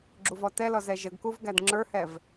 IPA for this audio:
ɡ͡ǁ u v ɔ t ɛ l ɔ z ɛ ʒ ə ɡ k u v ɡ æ d ŋ͡ǁ ə˞ h ɛ v

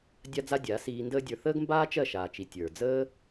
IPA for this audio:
dʲ a˦ d͡z a˦ dʲ a˨˦ s iː˧ n d əː˦ dʲ ə˞˧ θ əː˦ ɡ m b aː˦ t͡ʃ ɜ˦˨ ʃ aː˨ t͡ʃ i˨ tʲ ə˞˨ d͡z əː˦

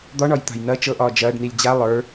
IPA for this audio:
d̪ ɒ ɳ ɒ j t̪ a̤ j n ɐ t͡ʃ ɤ ʔ ɒː d͡ʒ ɐː ɖ n i lʲ d͡ʑ a lˠ ə˞

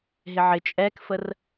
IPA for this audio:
ɦ ɪ ʕ ɪ t͡ʃʼ ɛ k f ə r

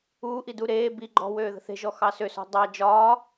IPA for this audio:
uː ʔ i d u ɾ eː b i ɡ͡ǃ ɔ̤ w øː ð ə̤ θ e̤ ʒ ɔ x ɑ s ø s ɔ̤ dˤ ɑ d͡ʒ ɒː

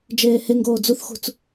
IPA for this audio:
d͡ʒ eː h e ŋ ɡ oː d͡z u θ x ṳ t͡s

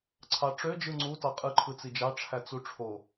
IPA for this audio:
ǀʰ ɑ ʈ͡ʂ ø d͡ʒ ɯ ŋ͡ǀ u t ɑ qʼ ɯ ǃʰ ɯ t͡s i d͡ʒ ɑ ʈ͡ʂʰ æ t͡s u ʈ͡ʂʰ o

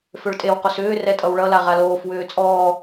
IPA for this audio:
f ø ɭ tʼ e w q o s ʏː r ɛ tʼ ʌ w ɭ ʌ l a ʁ a l oː f w ʏː t͡sʼ ɔː

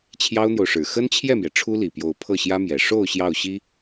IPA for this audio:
t͡ɕʰ j ɑ˥ ʊ̯ n̪ j o˨ ʊ̯ ʂ ɻ̩˨˩ x ə˥ n t͡ɕʰ j ɛ˥˩ m j ɛ˩ ʈ͡ʂʰ u˥ l i˨˩ p j o˧˥ ʊ̯ pʰ ɤ˥˩ ɕ j ä˥ m j ɛ˨˩ ʂ o˥˧ ʊ̯ ɕ j ɑ˥˩ ʊ̯ ɕ i˥

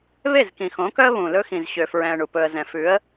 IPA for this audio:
β e˦˨ z k ĩ˨ x õ˨˦ k œ˦ ə̯ β ũ˨ l ɵ˦ x ĩ˨ z ɕ ø˨ f ɹ ɛ̃˨ ə̯ ɳ u˨ p ɵ˨ ə̯ z ɛ̃˨ f ʉ˨˦ ə̯

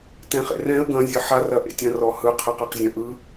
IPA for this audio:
t ɛ̃ χ ḛ r ɛ̃ ə̯ ɡ ɐ̃ zʲ ə ħ a r ɐ ʔ ḛ tʲ ɐ̃ r ɔ h ɯ qʰ ɯ q ɛ q zʲ ɐ̃ ʔ ɯ

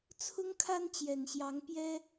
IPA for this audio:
t͡sʰ ʊ˦ ŋ kʰ a˦ n t͡ɕ j ɛ˨˩ n ɕ j ɑ˨˦ ŋ p j ɛ˦

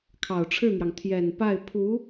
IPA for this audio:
kʰ ɑ˨˩ ʊ̯ ʈ͡ʂʰ ɻ̩˥˩ n̪ j ɑ˩ ŋ t̪ʰ j ɛ˨˩ n p a˥˩ ɪ̯ pʰ u˧˥

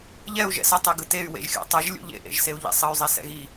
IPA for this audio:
ʎ ɛ u̯ ʒ ɛ̰ s ʌ tˤ ɛ ɡ ɯ t e y̯ w ḛ ʒ xʲ o̰ tˤ ʌ ʒ lʲ ṵ ʎ ḛ ʔ ḛ ʒ s e u̯ ʎ ḛ sˤ ʌ y̯ zˤ e s ɛ̰ ɣ i

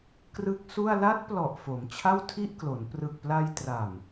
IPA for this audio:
k r ɯ˦˥ k̚ s u˥˩ a̯ l a˦˥ t̚ p l ɔ˨˩ ʔ f o˩˦ m t͡ɕʰ a˥˩ w tʰ i˥˩ ʔ k l o˩˦ n p r ɯ˨˩ k̚ p l a˧ j t r a˨˩ m

